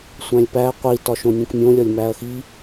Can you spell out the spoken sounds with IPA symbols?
sʷ æ̃ lʲ p æ qʷ i t ɒ ʃ õ nʲ ũ k mʲ õ lʲ ɒ lʲ m æ ɐ̯ x i

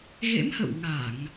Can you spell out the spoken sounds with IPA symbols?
ɣ ḛ˧˥ m h ə̰˧˨ w ŋ a˧˩˨ ŋ

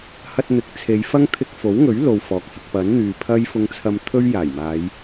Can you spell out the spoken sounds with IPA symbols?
h ɐ˧ t̚ n̪ ɪ˨˥ k̚ t͡sʰ e˨˧ j f ɐ˥ ŋ t̪ʰ ɪ˧ k̚ f o˨˥ w ŋ ɵ˨˥ ɥ l o˨ w f ɔː˨ k̚ h ɪ˧ k̚ p ɐ˨˥ n n̪ yː˨ pʰ ɐ˥ j f ʊ˧ ŋ t͡sʰ ɐ˧ m t̪ʰ ɵ˥ ɥ j aː˨˩ j m aː˨˧ j

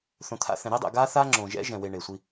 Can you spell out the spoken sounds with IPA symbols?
θ õ˨ t̪ʰ a̰˦˨ θ ɛ̃˨ ɾ i˦ dˤ ɛ̰˨ ɡ aː˦ θ aː˦ ŋ͡ǁ õː˨ ʒ ɛ̰˦ ʒ ɛ̃˨ w e˨ ɳ e˨ sʷ i˦

